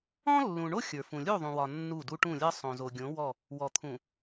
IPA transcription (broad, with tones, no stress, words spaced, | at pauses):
ɔ̃˦lːũ˨ɳo˦ xʲə˞˨fũ˨ lʲu˦˨ðˤũ˨wɒ˨ nːu˦˨du˦ ʈũ˦˨lʲɜ˦ sˤõ˨zo˨ɡʲõ˨˦ wɔ˦˨ | wɔ˨t̪ʰũ˨